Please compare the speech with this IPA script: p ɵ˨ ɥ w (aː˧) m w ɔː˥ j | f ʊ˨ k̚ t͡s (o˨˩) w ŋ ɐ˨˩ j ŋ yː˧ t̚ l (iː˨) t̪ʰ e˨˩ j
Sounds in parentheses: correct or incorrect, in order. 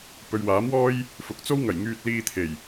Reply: incorrect: aː˨˥, incorrect: o˥, incorrect: iː˧

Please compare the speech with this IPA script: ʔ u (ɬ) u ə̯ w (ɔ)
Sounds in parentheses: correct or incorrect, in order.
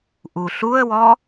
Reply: correct, correct

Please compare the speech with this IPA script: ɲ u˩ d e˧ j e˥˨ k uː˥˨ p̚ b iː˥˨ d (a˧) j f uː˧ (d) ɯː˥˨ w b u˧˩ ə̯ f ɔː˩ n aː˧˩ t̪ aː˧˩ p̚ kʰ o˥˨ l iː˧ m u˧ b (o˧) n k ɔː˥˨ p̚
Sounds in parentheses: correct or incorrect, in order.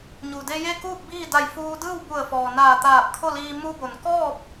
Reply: incorrect: a˧˩, correct, incorrect: o˩

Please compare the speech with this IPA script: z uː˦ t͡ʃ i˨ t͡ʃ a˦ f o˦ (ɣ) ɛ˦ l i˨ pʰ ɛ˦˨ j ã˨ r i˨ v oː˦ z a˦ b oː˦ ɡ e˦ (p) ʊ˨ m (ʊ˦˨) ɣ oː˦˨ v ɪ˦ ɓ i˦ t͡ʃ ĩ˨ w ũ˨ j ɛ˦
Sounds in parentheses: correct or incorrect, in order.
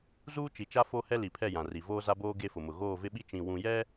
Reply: incorrect: h, incorrect: f, incorrect: ʊ˨

